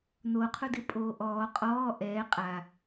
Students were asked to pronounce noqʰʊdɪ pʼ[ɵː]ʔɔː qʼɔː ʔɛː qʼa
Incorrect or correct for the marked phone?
incorrect: oː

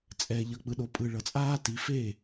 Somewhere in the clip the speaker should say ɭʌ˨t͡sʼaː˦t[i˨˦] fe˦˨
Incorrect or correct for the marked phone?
correct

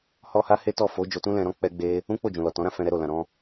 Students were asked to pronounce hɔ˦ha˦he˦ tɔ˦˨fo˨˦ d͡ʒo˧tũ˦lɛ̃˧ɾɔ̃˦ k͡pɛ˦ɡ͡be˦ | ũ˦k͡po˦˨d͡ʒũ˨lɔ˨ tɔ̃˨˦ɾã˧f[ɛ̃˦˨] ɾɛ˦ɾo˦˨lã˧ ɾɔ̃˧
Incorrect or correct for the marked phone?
incorrect: ɛ̃˧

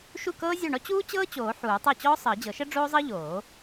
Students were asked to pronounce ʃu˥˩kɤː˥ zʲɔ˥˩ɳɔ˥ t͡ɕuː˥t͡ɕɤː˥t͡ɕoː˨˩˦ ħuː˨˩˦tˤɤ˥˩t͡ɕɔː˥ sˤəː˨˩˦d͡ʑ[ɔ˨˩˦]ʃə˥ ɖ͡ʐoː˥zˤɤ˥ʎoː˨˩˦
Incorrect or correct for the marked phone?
incorrect: ɤ˨˩˦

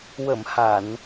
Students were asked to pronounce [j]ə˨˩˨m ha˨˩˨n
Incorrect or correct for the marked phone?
incorrect: w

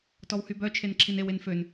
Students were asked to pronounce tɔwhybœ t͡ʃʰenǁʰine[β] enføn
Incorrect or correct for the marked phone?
incorrect: w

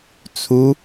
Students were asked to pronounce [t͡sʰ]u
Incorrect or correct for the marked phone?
correct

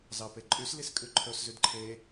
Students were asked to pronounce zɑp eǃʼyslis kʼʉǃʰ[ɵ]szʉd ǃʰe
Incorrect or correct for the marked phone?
correct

